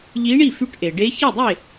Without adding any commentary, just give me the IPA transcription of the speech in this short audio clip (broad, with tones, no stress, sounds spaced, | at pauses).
ʎ i˧˥ ɳ i˥˩ f y˧˥ ʈ ʔ e˩ ɖ e˧˥ ç i˥˩ dˤ e˥˩